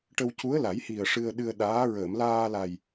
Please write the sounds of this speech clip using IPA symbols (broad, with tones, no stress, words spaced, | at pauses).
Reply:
ʈə˧wcu˧˥ə̯la˨˩˦jhi˨˩ə̯ ʂɨ˧ə̯ ɗɨ˧ə̯ɗaː˧˥ ɹəː˨˩˨mlaː˧la˨˩j